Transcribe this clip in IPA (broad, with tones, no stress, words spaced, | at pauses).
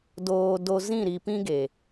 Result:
doː˧ do˧zĩ˦˨ ɾi˧pĩ˦ɡe˨